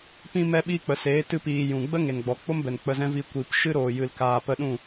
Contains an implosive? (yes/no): yes